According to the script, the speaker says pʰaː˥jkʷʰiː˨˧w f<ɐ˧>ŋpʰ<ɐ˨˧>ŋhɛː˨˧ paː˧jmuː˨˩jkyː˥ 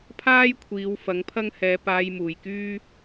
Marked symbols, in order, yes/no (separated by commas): no, no